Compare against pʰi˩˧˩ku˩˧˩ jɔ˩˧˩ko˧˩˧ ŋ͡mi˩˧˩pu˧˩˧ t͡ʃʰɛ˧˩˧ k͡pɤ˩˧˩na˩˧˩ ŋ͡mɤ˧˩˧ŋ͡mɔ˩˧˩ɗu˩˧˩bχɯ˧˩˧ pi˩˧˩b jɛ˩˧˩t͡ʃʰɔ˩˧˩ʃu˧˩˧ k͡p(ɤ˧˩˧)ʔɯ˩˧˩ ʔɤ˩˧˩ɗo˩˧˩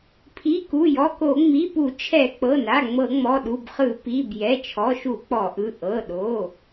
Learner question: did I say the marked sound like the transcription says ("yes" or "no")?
no